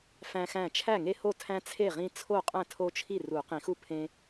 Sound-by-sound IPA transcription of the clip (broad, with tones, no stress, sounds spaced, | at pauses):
f æ̃˦ x æ̃˥˩ t͡ʃʰ æ˥˩ ŋ e˦ h o˥˩ tʰ æ̃˦ t͡sʰ e˥˩ ʁ ĩ˦ t͡sʰ o˥˩ qʼ æ̃˥˩ tʰ o˦ t͡ʃʰ i˥˩ r u˨˩˦ q ĩ˨˩˦ x u˥˩ pʰ ẽ˦